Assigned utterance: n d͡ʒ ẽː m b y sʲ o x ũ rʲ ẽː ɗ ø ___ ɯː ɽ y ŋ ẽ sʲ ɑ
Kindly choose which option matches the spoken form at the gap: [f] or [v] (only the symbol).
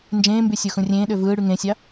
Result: v